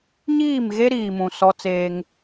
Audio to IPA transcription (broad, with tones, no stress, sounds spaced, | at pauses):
ɲ iː˦˨ m ɣ e˦ ɾ iː˨ m ũ˨ s ɔ˦ t͡s eː˦ ŋ